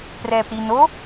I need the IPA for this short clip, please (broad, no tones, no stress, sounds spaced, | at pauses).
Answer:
p r ɛː p ɾ i n o